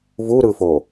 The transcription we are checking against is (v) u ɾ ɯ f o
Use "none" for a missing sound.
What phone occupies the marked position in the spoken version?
v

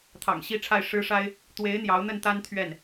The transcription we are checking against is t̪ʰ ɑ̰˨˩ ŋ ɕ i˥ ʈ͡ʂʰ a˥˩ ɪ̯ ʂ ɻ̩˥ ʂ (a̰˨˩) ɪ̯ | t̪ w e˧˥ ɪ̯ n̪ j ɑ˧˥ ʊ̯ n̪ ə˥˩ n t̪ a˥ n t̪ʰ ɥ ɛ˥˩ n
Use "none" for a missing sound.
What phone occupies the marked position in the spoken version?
a˥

